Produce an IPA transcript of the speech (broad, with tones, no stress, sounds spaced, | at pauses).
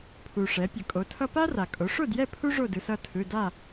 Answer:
pʰ u˩ ʂ ɛ˩˧ pʲ ʌ˩ kʼ o˩˧ tʰ ʌ˦ p a˦ r a˩ kʼ o˩˧ ʂ o˥˨ d j ɛ˥˨ pʰ u˦ ʐ o˥˨ d ɯ˩˧ s ʌ˥˨ tʰ ɯ˩˧˩ d a˥˨